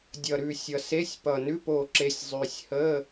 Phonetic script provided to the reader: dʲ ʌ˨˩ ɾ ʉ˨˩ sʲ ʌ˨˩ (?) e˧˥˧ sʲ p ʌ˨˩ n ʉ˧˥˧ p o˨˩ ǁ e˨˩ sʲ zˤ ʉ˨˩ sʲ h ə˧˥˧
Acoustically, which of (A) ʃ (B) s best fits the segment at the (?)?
B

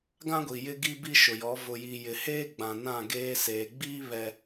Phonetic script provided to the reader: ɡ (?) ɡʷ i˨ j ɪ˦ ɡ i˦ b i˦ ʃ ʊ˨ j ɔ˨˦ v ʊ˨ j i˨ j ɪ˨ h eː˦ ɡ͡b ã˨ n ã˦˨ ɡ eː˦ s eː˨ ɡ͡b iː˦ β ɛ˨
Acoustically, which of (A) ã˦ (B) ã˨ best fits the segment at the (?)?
A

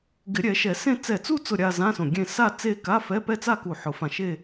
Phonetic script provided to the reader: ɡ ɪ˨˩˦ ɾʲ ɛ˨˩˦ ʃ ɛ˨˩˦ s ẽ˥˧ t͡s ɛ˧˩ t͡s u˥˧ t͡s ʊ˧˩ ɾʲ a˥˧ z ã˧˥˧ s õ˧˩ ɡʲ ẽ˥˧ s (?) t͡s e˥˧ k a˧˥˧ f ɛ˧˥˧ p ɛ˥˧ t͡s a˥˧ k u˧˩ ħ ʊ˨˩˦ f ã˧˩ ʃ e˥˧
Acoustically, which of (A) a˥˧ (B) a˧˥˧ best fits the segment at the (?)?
A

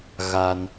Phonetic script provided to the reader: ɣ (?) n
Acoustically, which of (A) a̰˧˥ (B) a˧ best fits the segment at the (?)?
B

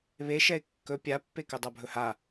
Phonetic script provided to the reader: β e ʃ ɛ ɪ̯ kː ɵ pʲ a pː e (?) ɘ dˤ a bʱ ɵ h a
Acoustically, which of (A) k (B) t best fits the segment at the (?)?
A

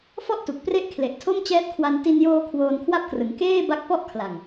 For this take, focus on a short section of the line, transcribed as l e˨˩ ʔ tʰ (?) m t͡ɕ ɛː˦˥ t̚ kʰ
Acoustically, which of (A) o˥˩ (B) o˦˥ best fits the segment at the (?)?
A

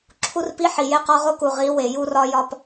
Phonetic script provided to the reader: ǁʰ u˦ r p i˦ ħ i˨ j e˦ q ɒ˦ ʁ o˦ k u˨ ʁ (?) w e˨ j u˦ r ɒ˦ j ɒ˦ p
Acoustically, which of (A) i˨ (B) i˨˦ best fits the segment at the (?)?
B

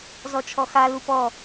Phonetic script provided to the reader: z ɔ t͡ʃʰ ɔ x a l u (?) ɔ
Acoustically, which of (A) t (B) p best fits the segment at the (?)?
B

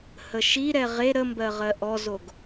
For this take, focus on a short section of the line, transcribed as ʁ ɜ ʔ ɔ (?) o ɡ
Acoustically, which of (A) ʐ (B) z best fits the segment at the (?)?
B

